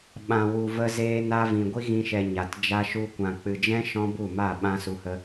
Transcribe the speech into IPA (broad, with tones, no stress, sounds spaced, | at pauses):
ɓ ã˨ w u˨ v ə˧ z eː˧ n a˧ v ĩ˨ ɡʷ i˦ ɣ ĩ˧ ʃ ɛ˨ ɲ a˨ t d͡ʒ a˦ ʃ u˦ kʷ ã˨ k͡p ɨ˨ d͡ʒ ɛ̃˦ ʃ ɔ̃˦ b u˦˨ m a˦˨ ɓ ã˦ s u˧ h ə˦